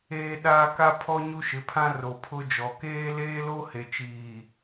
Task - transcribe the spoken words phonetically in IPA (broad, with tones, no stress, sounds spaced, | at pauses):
eː˦ ɗ aː˦ k a˦ pʰ ɔ˦ ɲ u˦ ʃ ɪ˨˦ pʰ ã˦ r o˨ pʰ ʊ˦ d͡ʒ ɔ˨ k eː˦ l eː˦ l o˦ h e˨ t͡ʃ iː˨